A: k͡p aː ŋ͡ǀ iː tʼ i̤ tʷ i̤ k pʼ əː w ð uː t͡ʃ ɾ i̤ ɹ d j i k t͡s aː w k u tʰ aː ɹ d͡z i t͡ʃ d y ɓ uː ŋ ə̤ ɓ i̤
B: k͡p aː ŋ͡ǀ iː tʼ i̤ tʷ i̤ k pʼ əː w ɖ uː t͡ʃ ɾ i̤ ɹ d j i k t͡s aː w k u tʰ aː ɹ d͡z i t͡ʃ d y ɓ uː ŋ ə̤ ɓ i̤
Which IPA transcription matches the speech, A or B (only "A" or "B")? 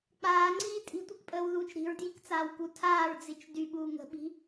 A